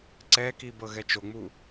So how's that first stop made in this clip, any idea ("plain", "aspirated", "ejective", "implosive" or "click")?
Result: click